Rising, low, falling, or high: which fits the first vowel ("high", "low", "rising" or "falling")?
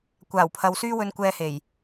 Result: low